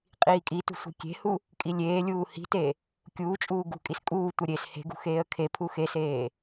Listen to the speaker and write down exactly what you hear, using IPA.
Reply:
qʼ iː kʼ i t ṳ sʷ i̤ kʲ e̤ h u | kʼ i lʲ eː lʲ uː h i̤ t e | kʲ uː t͡ʃʼ uː ɡ ṳ kʼ i s kʼ uː tʷ ɤ ɾʲ e s h e̤ ɡ ṳ x eː ə̯ kʰ e pʰ u x e s eː

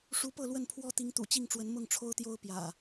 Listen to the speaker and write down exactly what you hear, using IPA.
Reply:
ʂ u˨˦ p ɤ˥˨ l w ə˥˨ n pʰ w ɔ˦ t̪ i˨˦ ŋ t̪ ṵ˨˩ t͡ɕ i˥˨ ŋ ʈ͡ʂ w ə˨˦ n m ʊ˥˨ ŋ ʈ͡ʂʰ o˦ ʊ̯ t̪ j o˦ ʊ̯ p j ä̰˨˩

